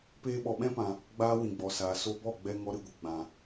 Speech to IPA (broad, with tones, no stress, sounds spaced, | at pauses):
p eː˧ ɓ ɔ˨ ɓ ɛ̃˦ p ã˨ | ɡ͡b aː˦ w ĩ˨ ɡ͡b ɔ˨ s aː˨ s o˧ b ɔ˦˨ ɡ͡b ɛ˧ ŋ ɔ˦ ɾ ɨ˧ ɡʷ ə˨ ɡ͡b ã˨